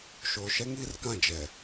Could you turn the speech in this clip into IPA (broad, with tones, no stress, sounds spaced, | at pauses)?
ʃ oː˨ ʃ ɛ˦ ŋ iː˦ r k ã˦˨ d͡ʒ ɛ˨